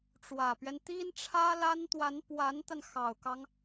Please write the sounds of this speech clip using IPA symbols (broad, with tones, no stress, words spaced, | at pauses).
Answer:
ʈ͡ʂwä˨˩pɥɛ˦n t̪i˥nʈ͡ʂʰä˥la˥n t̪wa˧˥npwa˧˥nt̪a˧n xɑ˨˩ʊ̯kɑ˦ŋ